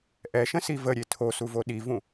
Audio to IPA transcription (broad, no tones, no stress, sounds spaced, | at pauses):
ʔ ɛ ʃ ə̃ s i v ə ɾʲ e tʰ o s u v o ɗ i v ũ